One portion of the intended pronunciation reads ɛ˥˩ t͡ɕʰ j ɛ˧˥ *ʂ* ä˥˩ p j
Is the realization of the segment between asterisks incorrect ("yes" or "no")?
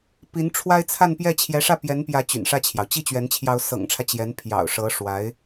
no